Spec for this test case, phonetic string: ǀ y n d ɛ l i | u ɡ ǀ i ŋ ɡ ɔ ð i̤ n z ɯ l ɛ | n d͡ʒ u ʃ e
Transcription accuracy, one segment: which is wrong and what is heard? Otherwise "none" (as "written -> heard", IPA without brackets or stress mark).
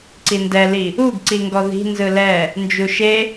y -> i